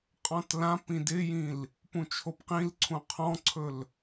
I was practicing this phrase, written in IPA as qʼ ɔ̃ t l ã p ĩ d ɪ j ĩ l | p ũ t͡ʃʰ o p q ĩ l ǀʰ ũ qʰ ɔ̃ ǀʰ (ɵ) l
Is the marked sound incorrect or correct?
correct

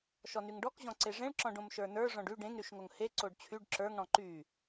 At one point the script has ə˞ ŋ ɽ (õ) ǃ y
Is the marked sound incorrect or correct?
incorrect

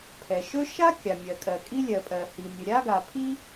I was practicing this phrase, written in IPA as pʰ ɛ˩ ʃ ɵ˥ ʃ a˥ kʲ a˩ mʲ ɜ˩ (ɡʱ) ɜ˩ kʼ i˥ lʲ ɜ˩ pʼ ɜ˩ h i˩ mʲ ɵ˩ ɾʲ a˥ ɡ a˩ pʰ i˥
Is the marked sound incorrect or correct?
incorrect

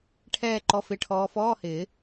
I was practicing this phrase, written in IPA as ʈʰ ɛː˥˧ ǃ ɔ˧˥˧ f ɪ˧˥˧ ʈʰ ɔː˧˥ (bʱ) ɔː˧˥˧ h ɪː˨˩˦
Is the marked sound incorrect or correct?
incorrect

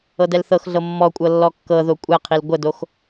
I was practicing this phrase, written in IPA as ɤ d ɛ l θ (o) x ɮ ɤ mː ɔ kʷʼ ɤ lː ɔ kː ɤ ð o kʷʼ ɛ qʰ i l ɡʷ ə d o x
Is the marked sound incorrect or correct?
incorrect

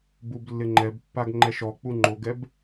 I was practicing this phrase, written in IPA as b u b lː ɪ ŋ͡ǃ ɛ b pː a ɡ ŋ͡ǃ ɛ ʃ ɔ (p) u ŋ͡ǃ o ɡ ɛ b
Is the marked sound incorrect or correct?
incorrect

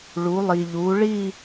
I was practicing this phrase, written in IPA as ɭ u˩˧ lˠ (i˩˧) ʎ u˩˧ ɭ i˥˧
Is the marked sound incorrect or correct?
incorrect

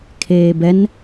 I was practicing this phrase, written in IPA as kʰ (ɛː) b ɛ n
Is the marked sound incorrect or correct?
incorrect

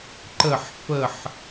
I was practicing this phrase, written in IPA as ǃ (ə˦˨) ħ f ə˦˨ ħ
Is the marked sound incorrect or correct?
correct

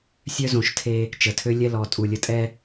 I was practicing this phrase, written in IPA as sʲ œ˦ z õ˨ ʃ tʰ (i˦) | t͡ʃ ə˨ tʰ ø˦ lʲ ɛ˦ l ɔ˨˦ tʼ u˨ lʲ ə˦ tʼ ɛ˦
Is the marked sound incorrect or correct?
incorrect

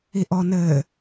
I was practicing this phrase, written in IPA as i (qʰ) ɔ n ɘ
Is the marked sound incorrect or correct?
incorrect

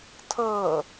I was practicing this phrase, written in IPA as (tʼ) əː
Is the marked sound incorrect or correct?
incorrect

